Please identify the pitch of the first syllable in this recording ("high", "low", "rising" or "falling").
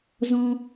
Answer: high